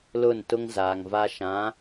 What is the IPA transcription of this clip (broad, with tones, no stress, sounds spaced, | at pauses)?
l ʊ˦˨ n t ʊ˦ ŋ z aː˨ ŋ v a˦ ʃ ã˨˦